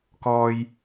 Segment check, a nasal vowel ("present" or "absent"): absent